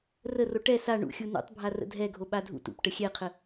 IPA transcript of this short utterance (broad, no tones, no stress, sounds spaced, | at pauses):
r ə r o ʈ ɛ s a ɳ ṵ xʲ u n ṵ tˤ bʱ a r ə̰ dʱ ɛ ɡʱ o ɓ a dʱ ṵ t ṵ p ʈ ə xʲ ɛ qʰ ə